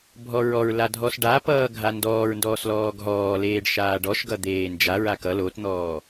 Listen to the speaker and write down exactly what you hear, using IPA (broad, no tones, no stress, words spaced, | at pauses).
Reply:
bʱɔɹɔɹla dʱɔsɖa pʌːɡʱandɔːɹ ndɔːslɔːɡɦɔː leːɖʃaːɖɔʃɡʌ d̪eːnd͡ʒaɹa kʌ lotn̪ɔː